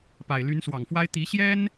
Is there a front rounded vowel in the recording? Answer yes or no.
yes